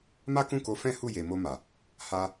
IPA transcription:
ma˦kũ˦˨ko˨˦fɛ̃˦ hu˦˨je˨mo˧ma˨ | ha˧

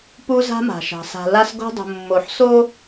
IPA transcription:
pu˦za̤˦ma̤˨ʃɑ̤˨ sa̤˨la˦s ɡo̤˦dˤo̤˨ mːo˨ħso˦

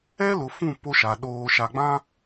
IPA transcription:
ɛ˦lʊ˨ fũ˦˨ po˦ʃa˨ ɗoː˨ʃa˨ɡ͡bã˦

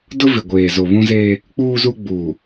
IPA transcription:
dʊ˦vɪ˨ ɡʷeː˨ zo˨βũ˦zeː˦ | k͡puː˦zu˦ ɡ͡buː˨

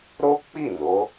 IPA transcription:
ɾo˦k͡pi˦˨ no˨˦

